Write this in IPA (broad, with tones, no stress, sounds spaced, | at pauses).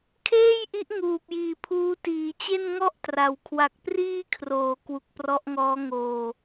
kʰ eː˥˩ j ʔ i˦˥ ʔ ŋ uː˨˩ p̚ j iː˨˩ pʰ uː˦˥ t iː˩˦ t͡ɕ e˥˩ n ŋ ɔ˥˩ ʔ t r a˩˦ w kʰ w a˨˩ k̚ p r iː˥˩ kʰ r oː˩˦ k w u˨˩ k̚ p r ɔ˦˥ ʔ ŋ ɔː˦˥ ŋ oː˧